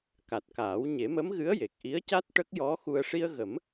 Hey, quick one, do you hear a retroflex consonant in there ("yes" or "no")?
yes